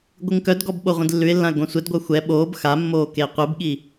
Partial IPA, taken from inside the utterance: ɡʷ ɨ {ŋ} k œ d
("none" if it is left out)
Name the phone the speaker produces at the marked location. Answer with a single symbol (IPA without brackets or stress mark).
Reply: ŋ